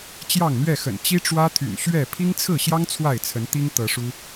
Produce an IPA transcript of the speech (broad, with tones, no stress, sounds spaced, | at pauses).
t͡ɕ j ɑ˥˨ ŋ n̪ ɥ ɛ˥˨ x ə̰˨˩ n t͡ɕ i˦ ʈ͡ʂ w ä˦ t̪ʰ y̰˨˩ n ɕ ɥ ɛ˥˨ pʰ i˦ ŋ t͡sʰ ɹ̩˥˨ ɕ j ɑ˦ ŋ t͡sʰ w a˥˨ ɪ̯ t͡sʰ ə˨˦ n t̪ i˦ ŋ t̪ ɤ˨˦ ʂ u˦